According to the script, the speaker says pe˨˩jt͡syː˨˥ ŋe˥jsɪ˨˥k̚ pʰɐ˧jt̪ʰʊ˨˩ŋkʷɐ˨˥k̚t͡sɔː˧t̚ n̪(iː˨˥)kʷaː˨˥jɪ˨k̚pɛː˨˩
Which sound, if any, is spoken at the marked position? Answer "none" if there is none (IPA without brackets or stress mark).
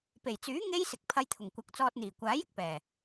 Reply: iː˨˩